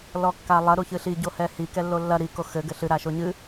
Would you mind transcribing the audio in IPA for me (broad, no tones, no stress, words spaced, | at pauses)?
lɔkːalˠɐ ɾuçɨɬi ɟohɛhi kɛlːolːɐ ɾi koxɘ ɡɘɬɨ ɾaʃoɲɨ